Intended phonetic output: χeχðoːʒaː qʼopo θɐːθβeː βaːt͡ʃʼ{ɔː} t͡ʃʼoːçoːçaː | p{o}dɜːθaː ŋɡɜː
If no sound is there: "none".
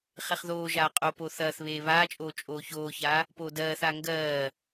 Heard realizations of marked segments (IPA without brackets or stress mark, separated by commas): oː, oː